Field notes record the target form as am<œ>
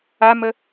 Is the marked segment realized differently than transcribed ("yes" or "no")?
yes